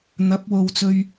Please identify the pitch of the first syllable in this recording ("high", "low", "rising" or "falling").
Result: rising